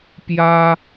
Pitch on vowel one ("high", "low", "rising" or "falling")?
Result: high